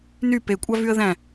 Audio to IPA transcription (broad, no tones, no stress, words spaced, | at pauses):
ny pekʷʼɑvyə̯ ðæ̃